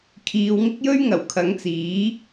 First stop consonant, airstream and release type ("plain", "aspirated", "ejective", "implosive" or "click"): aspirated